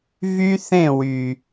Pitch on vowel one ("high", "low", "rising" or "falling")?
high